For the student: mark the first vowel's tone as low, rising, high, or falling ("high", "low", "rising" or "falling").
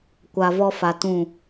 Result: low